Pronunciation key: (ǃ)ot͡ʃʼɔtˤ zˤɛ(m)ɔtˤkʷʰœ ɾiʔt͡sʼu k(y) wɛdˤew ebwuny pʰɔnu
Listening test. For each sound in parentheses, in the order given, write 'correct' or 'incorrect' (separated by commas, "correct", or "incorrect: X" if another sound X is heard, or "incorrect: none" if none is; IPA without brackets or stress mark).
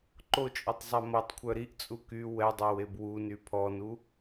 correct, correct, correct